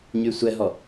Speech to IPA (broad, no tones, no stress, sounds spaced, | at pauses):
ɲ y sʷ ɛ ɦ ɔ